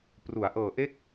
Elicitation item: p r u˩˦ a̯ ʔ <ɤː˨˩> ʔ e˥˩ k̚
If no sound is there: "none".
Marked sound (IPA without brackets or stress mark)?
ɤː˨˩